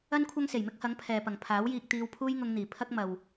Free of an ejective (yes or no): yes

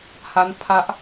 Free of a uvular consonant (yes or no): yes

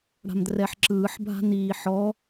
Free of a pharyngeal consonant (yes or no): no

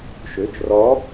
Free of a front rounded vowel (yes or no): no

